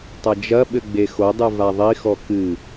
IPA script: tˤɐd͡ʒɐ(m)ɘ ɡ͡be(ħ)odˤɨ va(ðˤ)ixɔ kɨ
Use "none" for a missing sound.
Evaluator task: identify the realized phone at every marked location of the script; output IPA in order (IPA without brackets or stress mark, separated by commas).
ɓ, x, ðˤ